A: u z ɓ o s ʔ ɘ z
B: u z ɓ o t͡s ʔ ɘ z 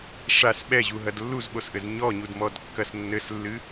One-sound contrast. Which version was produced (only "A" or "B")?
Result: A